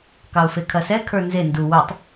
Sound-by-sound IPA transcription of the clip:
kɑʊ̯fekʰɐsɛ kʰə˞nze ndu wœtˤ

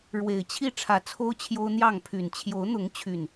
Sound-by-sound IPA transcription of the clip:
ɻwe˨˩ɪ̯t͡ɕʰi˥˨ ʈ͡ʂʰä˨˦t͡sʰo˦ʊ̯t͡ɕʰjo˦ʊ̯n̪jɑ˥˨ŋ pʰy˨˩n t͡ɕʰjo˨˦ʊ̯n̪ʊ˨˦ŋt͡ɕʰy˨˩n

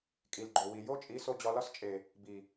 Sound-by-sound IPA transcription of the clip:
kʼi˨lɡ͡ǃo˨wi˨ jo˦t͡ʃʼi˨˦so˧ d͡ʑɒ˧lɒ˦st͡ʃʼe˨ | bi˨

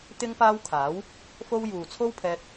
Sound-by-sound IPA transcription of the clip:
t̪ɪ˥ŋpaː˥wkʰaː˨˥w | fo˥w juː˨t͡sʰo˥wpʰɛː˧t̚

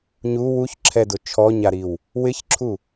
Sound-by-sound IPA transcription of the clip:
ɲu wuçǁʰɛdʊ t͡ʃʰɔɲaɾiw | wɪçǁʰu

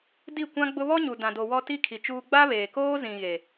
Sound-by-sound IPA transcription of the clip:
di˦˨kʷã˦ɡ͡bʊ˦ βɔ˦ɲu˨ dã˨do˨ wɔ˦ti˦kʰi˨t͡ʃuː˦ ɡ͡ba˦βeː˨koː˦ zĩ˨ ɣe˨

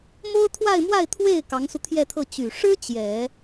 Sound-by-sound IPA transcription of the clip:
mo˥ʊ̯t̪ʰwa˥˧ɪ̯mwa˥˧ɪ̯ t̪ʰwe˥˩ɪ̯ kɑ˧˥ŋsu˧t̪ʰjɛ˥˧t̪ʰɤ˥˩ t͡ɕy˨˩ʂɻ̩˥ t͡ɕjɛ˨˩˦

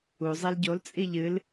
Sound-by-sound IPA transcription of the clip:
u zˤelɟol t͡sʼiʎɨl

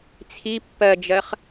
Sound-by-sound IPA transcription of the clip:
t͡sʰi pːɜd͡ʒɜχ

